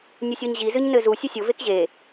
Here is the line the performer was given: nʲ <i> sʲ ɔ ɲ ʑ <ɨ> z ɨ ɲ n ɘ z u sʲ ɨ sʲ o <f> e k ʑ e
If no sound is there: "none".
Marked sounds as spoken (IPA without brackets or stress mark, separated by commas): ɨ, i, v